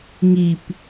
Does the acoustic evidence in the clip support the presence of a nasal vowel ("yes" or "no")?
no